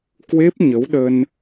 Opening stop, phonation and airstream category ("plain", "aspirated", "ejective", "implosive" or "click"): plain